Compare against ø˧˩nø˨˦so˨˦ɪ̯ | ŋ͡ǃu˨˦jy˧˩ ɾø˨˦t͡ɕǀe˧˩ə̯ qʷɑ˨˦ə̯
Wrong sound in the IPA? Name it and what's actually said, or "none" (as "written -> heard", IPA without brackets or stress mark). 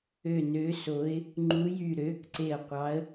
t͡ɕ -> k